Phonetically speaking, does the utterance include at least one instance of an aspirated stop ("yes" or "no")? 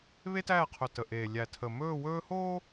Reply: yes